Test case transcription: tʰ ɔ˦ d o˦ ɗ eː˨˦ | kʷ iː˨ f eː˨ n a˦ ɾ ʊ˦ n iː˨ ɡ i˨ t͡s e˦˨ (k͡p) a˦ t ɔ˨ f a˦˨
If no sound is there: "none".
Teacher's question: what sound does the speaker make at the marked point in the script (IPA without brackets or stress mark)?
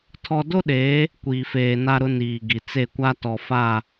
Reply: kʷ